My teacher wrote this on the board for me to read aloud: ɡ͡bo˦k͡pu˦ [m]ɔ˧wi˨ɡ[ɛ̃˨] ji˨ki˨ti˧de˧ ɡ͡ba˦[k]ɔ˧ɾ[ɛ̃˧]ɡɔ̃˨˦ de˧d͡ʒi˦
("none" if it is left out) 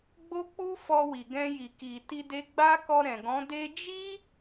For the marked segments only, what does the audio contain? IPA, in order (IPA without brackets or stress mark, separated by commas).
f, ɛ̃˧, k, ɛ̃˨